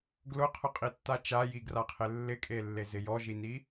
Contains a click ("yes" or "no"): no